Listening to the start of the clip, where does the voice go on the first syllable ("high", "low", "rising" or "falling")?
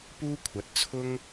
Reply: high